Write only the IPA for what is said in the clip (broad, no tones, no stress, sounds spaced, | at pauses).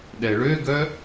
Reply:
ɗ ɛ ɭ ø ɡ œ